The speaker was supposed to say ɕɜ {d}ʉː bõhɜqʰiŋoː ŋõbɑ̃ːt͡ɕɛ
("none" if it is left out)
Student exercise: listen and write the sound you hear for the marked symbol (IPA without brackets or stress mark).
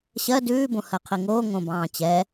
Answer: d